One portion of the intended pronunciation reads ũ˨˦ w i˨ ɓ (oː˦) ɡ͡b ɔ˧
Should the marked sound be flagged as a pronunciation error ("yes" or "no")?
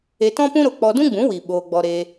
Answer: yes